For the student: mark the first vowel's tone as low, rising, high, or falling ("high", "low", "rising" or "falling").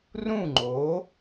falling